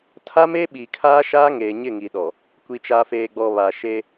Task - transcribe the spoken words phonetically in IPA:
tʰ a˦ m e˦ ɓ i˨ kʰ aː˦ ʃ aː˦ ŋ eː˨ ɲ ɪ˦˨ ŋ i˨ ɗ ɔ˨ | kʷ i˨ t͡ʃ aː˨ f eː˨ ɡ͡b ɔ˨ β a˨ ʃ e˦

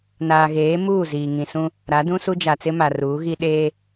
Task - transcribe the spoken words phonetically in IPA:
n aː˨ ɣ eː˨˦ m uː˦˨ z iː˨ ŋ ĩ˨ s ũ˦ | ɾ a˨˦ d ũ˦ s u˦ d͡ʒ a˨ t͡s ɪ˦ m a˨ r uː˨˦ ɣ i˦ ɗ eː˦

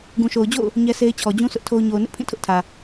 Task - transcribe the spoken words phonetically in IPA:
ɡ ũ˨ ʃ o˨ ʊ̯ d͡ʑ o̰˦˨ ʊ̯ | ɲ ɛ˦ s e˦ ɪ̯ t͡ɕʰ ɔ˨ d͡ʑ ũ˦ s ʊ˦ ʔ tʰ o˦ ʊ̯ ɲ o˨ ʊ̯ n ɪ˦ ʔ pʰ ĩ˦˨ tʰ ʊ˦ ʔ tʰ ä˨

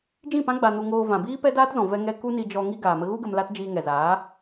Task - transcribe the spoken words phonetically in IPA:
d͡ʒ ĩ˦˨ p ã˦ ɡ͡b a˧ n u˧ ŋ oː˧ v ã˨ b iː˦ p ɛ˦ d aː˦ t z ɔ̃˨ v ɛ˧ ŋ ɛ˧ k u˦ n i˧ d͡ʒ ɔ˧ ŋ i˦ ɡ aː˨ m ə˧ ɣ u˦ ɡ ə˧ m l a˦ t d͡ʒ iː˧ ŋ ɛ˨ z aː˨˦

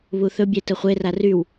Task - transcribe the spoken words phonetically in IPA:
β u θ ɵ bʲ e t ə χʷ e r a r y w

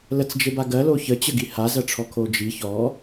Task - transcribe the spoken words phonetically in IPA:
l ə t͡s d͡ʒ e b a ɡ ɜ l o ç ə t͡ɕ ə ɡ i h a z ɜ ʈ͡ʂʰ ɔ kʰ o d͡ʒ i ç ɔ

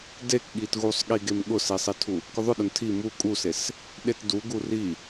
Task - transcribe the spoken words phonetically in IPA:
d e k ɠ i t ɣ u sˤ ɠ i ɡ e m ɠ ʊ s i sˤ i tʰ u | k ʊ ðˤ ʊ ɗ ʊ n tʰ i m u kʼ u s e s | ɗ e t d u ɡ u r i

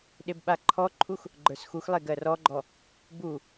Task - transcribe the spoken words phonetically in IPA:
ɗ e b ɓ a ǃʰ ɔ ǃʰ u x | ɡ͡ǃ ə˞ s x u x lˠ e ɡ ɜ r ɔ ɡ͡ǃ ɔ | b u

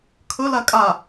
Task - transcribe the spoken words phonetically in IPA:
kʰ ɵ l a kʼ a

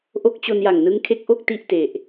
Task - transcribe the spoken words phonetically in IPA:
ʔ o˦˥ k̚ t͡ɕ o˧ n j a˨˩ ŋ n ɯ˦˥ ŋ kʰ e˦˥ k̚ ʔ o˥˩ k̚ t i˥˩ ʔ t e˨˩ ʔ

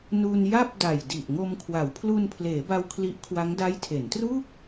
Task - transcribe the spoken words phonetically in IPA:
n u˧ n j a˥˩ p̚ d a˨˩ j d i˨˩ ʔ ŋ o˧ m kʰ w a˩˦ w pʰ l u˧ n pʰ l eː˩˦ b a˧ w kʰ l i˦˥ ʔ kʰ w a˦˥ ŋ d a˦˥ j tʰ e˩˦ n t r uː˥˩ k̚

